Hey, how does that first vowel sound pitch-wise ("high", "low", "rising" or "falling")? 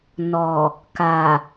low